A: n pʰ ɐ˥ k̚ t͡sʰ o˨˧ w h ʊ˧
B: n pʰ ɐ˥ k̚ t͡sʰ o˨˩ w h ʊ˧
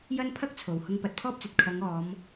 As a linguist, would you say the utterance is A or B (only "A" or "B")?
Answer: B